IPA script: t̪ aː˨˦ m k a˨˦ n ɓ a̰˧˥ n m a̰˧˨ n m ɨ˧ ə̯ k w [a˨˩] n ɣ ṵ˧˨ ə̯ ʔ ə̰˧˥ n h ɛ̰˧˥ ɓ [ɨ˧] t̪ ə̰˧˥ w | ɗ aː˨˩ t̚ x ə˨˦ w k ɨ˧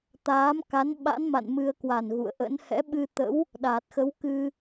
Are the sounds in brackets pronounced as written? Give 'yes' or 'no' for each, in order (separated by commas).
yes, yes